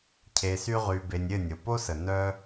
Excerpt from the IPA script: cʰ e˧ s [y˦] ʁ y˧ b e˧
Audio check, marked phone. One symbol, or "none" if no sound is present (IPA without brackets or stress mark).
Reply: y˦